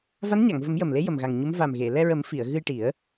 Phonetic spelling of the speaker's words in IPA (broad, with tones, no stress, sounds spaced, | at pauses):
v a˧˥ n ɲ a˨˩˨ ŋ v ə˨˩˦ m j ə˨˩ m l e˧˥ j ə˨˩ m ɣ a˨˩ ŋ ɲ u˧˥ m v a˨˩ m ɣ e˨˩˨ l ɛ˧ ɹ ə˨˩˦ m f i˨˩˨ ə̯ ɣ ɨ˧ j ʈ i˨˩˦ ə̯